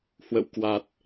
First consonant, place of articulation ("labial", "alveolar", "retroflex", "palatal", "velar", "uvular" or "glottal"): glottal